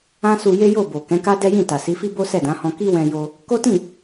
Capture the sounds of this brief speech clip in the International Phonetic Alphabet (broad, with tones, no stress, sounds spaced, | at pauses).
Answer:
ã˦ s u˧ j e˦ j o˦˨ b o˨ k ɛ̃˨˦ k a˦ d ɛ˦ j ĩ˦˨ t a˨ s i˨˦ f i˦ b o˦ s ɛ˦˨ d ã˨˦ h ɔ̃˧ k i˦ w ɛ̃˧ j o˧ | k o˦ t ĩ˦˨